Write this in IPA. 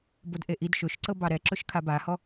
b o d ʔ e ʔ i d ʃ ʊ ʃ ǀ ɤ b ɑ ɾ ɛ ǁ ʊ ʃ kʰ a b a h ɔ

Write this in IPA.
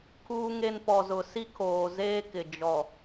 kʰ uː˦ ŋ e˦ n p ɔ˨ z ʊ˨ s i˦ kʰ oː˨ z eː˦ k ɪ˨ d͡ʒ ɔ˨

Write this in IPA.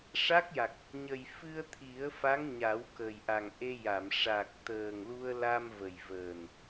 ʂ a˦˥ k̚ j a˨˩ k̚ | ɲ ə˨˩ j f ɨ˧ ə̯ t̪ʰ i˨˩˦ ə̯ f a˧˥ ŋ ɲ a˨˩˦ w k ə˨˩ j ʔ a˨˩ ŋ ʔ e˧ j a˨˩˨ m ʂ a˨˩ k̚ t̪ əː˨˩ ŋ l u˧ ə̯ l a˧ m v ə˨˩ j v əː˨˩ n

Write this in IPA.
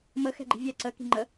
m ə x ɛ̤ ɡ͡ǃ i̤ vʲ ɛ ǀ ə k i̤ ŋ͡ǃ ə

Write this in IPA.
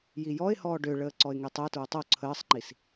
j i j ɔ ɪ̯ h ɔː ɖ ø ɭ əː ǀ ɔ ɪ̯ ŋ e tˤ ə ʊ̯ t ɹ ʊ tˤ o ǀʰ əː sˤ ŋ͡ǃ i s

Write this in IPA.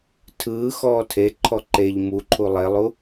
tʰ ɯː x ɔː tʰ e ǃʰ ɔ ǃ e ʎ m u ǃʰ u lˠ e lˠ u

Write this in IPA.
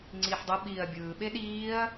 ŋ͡ǀ iː ħ dˤ ʌ ɓ iː ɐ̯ bʲ ɯː ɓ e ɗ iː ɐ̯

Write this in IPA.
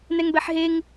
n ɛ ŋ b ɛ ħ ɦ e ŋ

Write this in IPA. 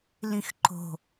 l ĩ x ǃ o̤

